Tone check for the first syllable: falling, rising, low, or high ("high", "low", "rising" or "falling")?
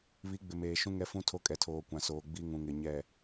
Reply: rising